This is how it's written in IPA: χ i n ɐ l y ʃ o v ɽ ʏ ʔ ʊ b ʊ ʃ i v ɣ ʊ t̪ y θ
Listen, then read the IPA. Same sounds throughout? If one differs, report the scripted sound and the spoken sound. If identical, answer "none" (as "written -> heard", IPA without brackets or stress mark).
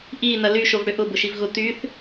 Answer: χ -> ʔ